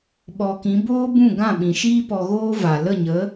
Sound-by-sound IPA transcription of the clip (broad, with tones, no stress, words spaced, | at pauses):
ɓɔ˨kĩ˨˦ boː˦bũ˦˨ ɡã˦˨ɓĩ˨ʃiː˦pɔ˧ ɣoː˦va˨ lə˦˨ɲə˨˦